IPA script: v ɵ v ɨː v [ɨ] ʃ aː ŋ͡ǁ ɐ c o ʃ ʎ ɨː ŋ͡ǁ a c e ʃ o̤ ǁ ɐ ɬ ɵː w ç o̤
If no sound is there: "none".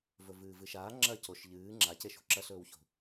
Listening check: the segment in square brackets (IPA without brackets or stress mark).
ɨ